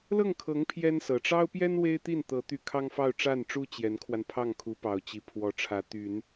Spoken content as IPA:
lɤ˥˩ŋkʰɤ˧˥ŋ pʰjɛ˥nsɤ˨˩ ʈ͡ʂɑ˥ʊ̯pjɛ˥n we˥ɪ̯t̪i˥˩nt̪ɤ˧˥ t̪y˥˩ kʰɑ˥ŋfɑ˥˧ʊ̯ ʈ͡ʂa˥˩nʈ͡ʂu˥ t͡ɕjɛ˧˥nkʰwa˧n pʰɑ˥˩ŋkʰu˧˥pɑ˨˩ʊ̯ t͡ɕi˧˥pʰwɔ˧˥ʈ͡ʂʰä˧˥ t̪y˨˩˦n

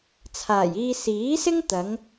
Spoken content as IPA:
t͡sʰaː˨˩jiː˧ siː˨˥sɪ˥ŋ t̪ɐ˨˥ŋ

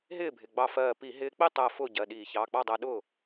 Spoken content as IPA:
ɦɪː˥˩bʱɪ˩˧˩ɡ͡bɑ˧˩fɜː˧˩ pi˧˩˧ɦɪː˧k͡pi˥˩tˤɜ˧˩ fʊː˥˩ɟɜ˩˧˩ɗiː˧˩˧ çɑː˩˧˩k͡pɑ˥˩dˤɜ˧ɗʊː˥˩

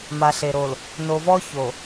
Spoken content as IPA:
ma˨ɬe˨ ɾo˨l | no˨vɔ˦ ço˨

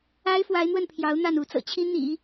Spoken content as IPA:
a˥ɪ̯fwa˧˥ɪ̯n̪wə˥˩npʰjɑ˧˥ʊ̯ n̪a˥˩nu˧˥ t͡sɤ̰˨˩t͡ɕʰi˥ n̪ḭ˨˩˦

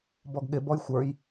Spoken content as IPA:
bɔɡɠɪ bɔjxʷə˞j

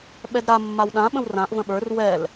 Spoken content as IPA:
ɓɛdɾa mːawɗã ɓə̃wrãʔ və̃ɓə˞r wɛl

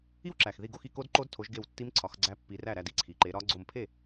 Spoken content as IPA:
i˦˥wǁæ˩xði˧˩ɡo˥˩x i˥˩ko˦˥dǃo˦˥dtʰo˨˦ʒ ɡe˧˩w tːi˦˥mǀʰɒ˨˦xɡ͡ǀæ˦˥ pːi˨˦ræ˥˩ɾæ˥˩ di˦˥ǀʰi˩ǃe˨˦ɾɒ˦˥ ɡ͡ǀo˧˩mpʰe˥˩

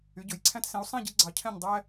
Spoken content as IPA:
y˩˧ɟɵ˩˧˩jǀʰæ̃˦tsẽ˨˥u̯ sˤẽ˥˨ɟi˦ ɡ͡ǀɑ˨˥cʰɛ̃˥˨ɲ dˤæ˦

